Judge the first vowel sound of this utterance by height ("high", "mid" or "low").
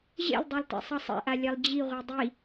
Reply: mid